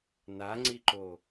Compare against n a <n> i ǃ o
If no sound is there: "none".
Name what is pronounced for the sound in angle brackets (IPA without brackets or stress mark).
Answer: ŋ͡ǀ